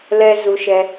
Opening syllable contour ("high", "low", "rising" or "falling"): high